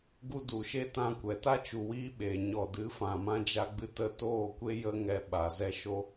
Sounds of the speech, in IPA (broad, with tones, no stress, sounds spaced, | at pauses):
ɡ u˧ d u˨ ʃ e˦ t ã˧ kʷ ɛ˨ t a˦ t͡ʃ u˨ w iː˧ ɓ eː˨ ɲ ɔ˨ d ɨ˨˦ f ã˨ m ã˧ d͡ʒ a˧ ɡ͡b ɨ˧ t ə˧ t oː˦˨ kʷ e˦ j ə˦ ŋ ɛ˧ ɓ a˨ z ɛ˧ ʃ o˦